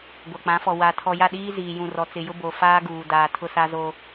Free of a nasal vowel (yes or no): no